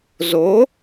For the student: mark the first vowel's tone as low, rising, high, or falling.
rising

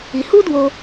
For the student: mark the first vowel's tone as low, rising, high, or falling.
low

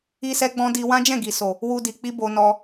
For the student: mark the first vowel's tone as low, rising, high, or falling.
high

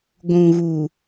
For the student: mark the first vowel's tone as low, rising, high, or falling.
low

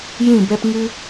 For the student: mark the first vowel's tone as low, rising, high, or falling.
falling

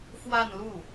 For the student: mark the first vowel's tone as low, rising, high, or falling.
falling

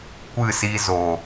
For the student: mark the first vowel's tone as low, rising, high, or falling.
falling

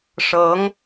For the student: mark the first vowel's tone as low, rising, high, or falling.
rising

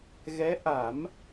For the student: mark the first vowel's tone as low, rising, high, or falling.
rising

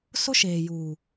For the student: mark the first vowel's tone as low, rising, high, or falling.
high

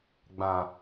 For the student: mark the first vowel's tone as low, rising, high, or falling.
low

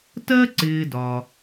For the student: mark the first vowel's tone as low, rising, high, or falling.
high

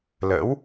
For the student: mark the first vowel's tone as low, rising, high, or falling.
rising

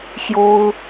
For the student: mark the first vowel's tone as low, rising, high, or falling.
high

